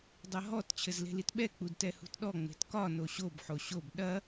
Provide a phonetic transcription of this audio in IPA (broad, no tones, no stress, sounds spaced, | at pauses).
dˤ ɐ ɦ ɔ t t͡ɕʰ ɘ z l e̤ l i t ɓ ɛ k͡p u d t ɛ h ṳ t ɗ ɔ ŋ͡m e̤ t k ɒ n o ɕ o b ħ o ɕ o b ɗ ɐ